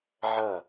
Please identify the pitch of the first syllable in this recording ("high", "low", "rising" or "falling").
falling